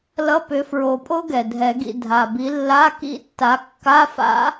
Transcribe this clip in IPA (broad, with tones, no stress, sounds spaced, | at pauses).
l ʌ˧˥˧ p ʏ˨˦ f ɹ o˨˩˦ pʼ o˦˥ ɡ ɛ˨˩ dʱ ɛ˨˩˦ ɡ ḭ˦˨ dʱ a˨˩ b i˨˦ lː a˧˥˧ k ḭ˦˥ tː a˨˦ kː a˧˥˧ f a̰˦˥